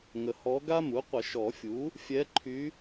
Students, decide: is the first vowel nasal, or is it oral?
oral